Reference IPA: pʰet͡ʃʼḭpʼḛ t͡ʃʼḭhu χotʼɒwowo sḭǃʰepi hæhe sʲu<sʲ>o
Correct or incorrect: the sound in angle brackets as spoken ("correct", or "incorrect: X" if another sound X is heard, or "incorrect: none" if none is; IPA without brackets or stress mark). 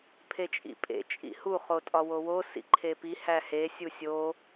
correct